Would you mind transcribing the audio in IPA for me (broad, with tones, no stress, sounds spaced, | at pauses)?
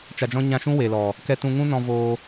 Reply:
t͡ʃ a˧ d͡ʒ ɔ̃˦ ɲ ã˧ ʃ ũ˦ w e˨ l ɔ˨ | k ɛ˧ t ũ˧ ŋ ũ˦ n ɔ̃˧ v oː˧